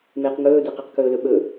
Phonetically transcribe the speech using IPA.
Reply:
m ɪː q ŋ ɵː d e q i q k ɵː l ɵ ɓ ɵ

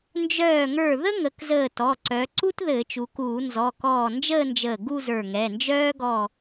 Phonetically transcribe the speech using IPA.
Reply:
n d͡ʒ œː˧˩ ŋ ə˞˧˩ ð ə˥ ŋ ə˩˧ k z əː˧˩ t ɔ˩˧˩ ǀ œ˩˧ ǀ u˥ t ð ɘː˧˩˧ t͡ʃ u˩˧ k uː˧˩˧ n z ɔ˩˧˩ k ɔː˧˩ n d͡ʒ əː˥˧ n d͡ʒ əː˧˩ ɡ u˥˧ z ə˞˧˩ ŋ ɛ˩˧˩ n d͡ʒ œː˥ ɡ ɔ˥˧

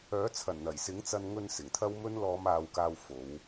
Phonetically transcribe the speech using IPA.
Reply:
œː˨˥ t͡sʰ ɐ˨˩ n n̪ ɐ˨˩ j s ɪ˨˥ ŋ t͡s ɐ˧ n ŋ ɵ˧ n s ɪ˨˩ ŋ t̪ʰ ɐ˥ w m ɵ˥ n l ɔː˨˧ m aː˨ w k aː˨ w f o˨˧ w

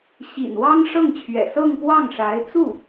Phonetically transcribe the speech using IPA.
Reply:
ɕ ḭ˨˩ n w ɑ˥ ŋ ʂ ɤ˥˩ ŋ t͡ɕʰ ɥ ɛ̰˨˩ s ɤ˥˧ ŋ p w ɑ˥˩ ŋ ʂ a˧˥ ɪ̯ t͡s u˥˩

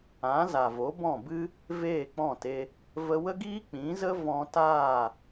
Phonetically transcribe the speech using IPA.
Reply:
ã˨˦ z a˨ v o˨˦ b ɔ̃˦˨ b ɨ˦ | v eː˦˨ k͡p ɔ̃˦˨ t e˧ | v ə˧ w ə˦ ɡ iː˦ k͡p ĩ˨˦ z ə˦ v ɔ̃˧ t aː˦˨

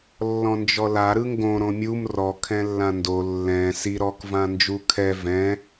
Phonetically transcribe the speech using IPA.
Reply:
lː ɔ̃ n d͡ʒ ɔ l a ɾ ɯ ŋ ɡ õ ɾ õ mʲ u m r ɔ kʰ ɛ̃ lː ã n d o lː ɛ̃ s i ɾ ɔ k v ã n d͡ʒ u kʰ ɛ v ɛ̃

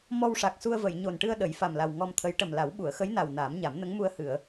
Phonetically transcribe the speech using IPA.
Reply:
m ɔ˧ w ʂ a˨˩ k̚ s u˧ ə̯ v ə˨˩˨ j ɲ o˨˩ n ʈ ɨ˧ ə̯ ɗ ə˨˩˦ j f a˨˩ m l a˨˩ w ŋ ɔ˧ m t̪ʰ ə˧˥ j ʈ ə˨˩ m l a˨˩˦ w ɓ u˨˩˨ ə̯ x ə˧˥ j n a˨˩ w n aː˨˩˦ m ɲ a˨˩˦ m n ə˧˥ ŋ m u˧ ə̯ h ɨ˨˩˨ ə̯

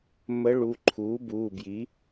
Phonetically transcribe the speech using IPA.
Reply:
m ə˧˥ ɭ u˩˧˩ ǃʰ uː˩˥ b uː˩˧˩ b j i˩˥

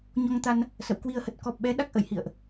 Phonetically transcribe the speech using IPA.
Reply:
ɲ ɔ˧ ŋ t̪ a˧ n | s ə̰˧˨ w k w i˧ ə̯ h ə˨˩ t̚ k ɔ˨˩ p̚ ɓ ɛ˨˦ ɗ a˦˥ k̚ ʔ ə̰˧˨ j h ḭ˧˨ ə̯ ʔ

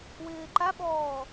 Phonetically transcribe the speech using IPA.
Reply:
w ɪː ǃ a ɓ ɔː

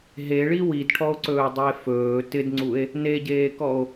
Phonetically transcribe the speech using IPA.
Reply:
ɦ e ɭ i w i d ʈʰ ɔ o̯ ǀ ɵː dˤ i e̯ f ɵː t ɪ d ŋ͡ǀ u e̯ | n e ɟ eː k ɔ o̯

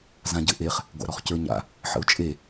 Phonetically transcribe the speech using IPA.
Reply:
z ã ɟ ɘ ʔ e χ | ɡʷ a̰ ɾ ɔ χ c ə˞ ɲ a̰ | ħ ə̰ ʊ̯ t͡ʃʼ e

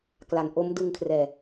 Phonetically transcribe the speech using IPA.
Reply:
k l a˩˦ n ʔ o˦˥ m d ɯ˧ ŋ kʰ r ɛː˨˩

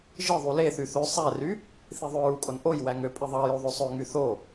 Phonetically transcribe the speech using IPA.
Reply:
ʒ ɯ ðˤ u l e θ y θ ø sˤ æ r y | θ i ðˤ ø ɹ u kʼ o n ʔ o j w æ ŋ ø pʼ i ðˤ ɑ j o ðˤ ø sˤ ø ŋ y θ o

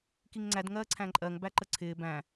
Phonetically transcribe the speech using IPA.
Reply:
k i ŋ ŋ͡ǀ æ d ŋ ɜː ǀʰ æ̃ ǃʼ ɜ ŋ b æ ǃ ə ǀʰ ɪː b æ̃

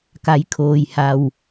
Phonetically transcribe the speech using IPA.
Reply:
k a˩˧ j kʰ oː˩ j h a˩ w

